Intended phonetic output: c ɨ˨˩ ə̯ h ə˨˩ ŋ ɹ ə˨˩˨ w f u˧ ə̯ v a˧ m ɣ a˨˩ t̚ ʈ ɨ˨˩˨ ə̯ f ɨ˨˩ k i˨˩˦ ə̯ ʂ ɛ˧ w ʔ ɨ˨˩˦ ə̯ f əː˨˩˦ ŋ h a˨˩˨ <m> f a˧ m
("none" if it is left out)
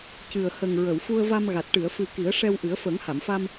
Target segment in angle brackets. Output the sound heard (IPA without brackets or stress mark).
m